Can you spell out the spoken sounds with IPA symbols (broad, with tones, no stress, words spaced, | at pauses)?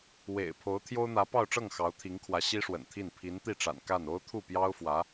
wḛ˨˩ɪ̯ pʰo˧˥ʊ̯t̪ʰjo˥ʊ̯n̪ä˧˥ pɑ˥˧ʊ̯ʈ͡ʂɤ˥˩ŋ xɑ˧˥ʊ̯t̪ʰi˧˥ŋkʰwä˧˥ ɕi˥ʂwə̰˨˩nt̪ʰi˥˩n pʰi˧˥nt̪i˥˩ʈ͡ʂa̰˨˩n ka˥˩n o˥ʊ̯t̪ʰu˥˩pjɑ˥ʊ̯fwä˧˥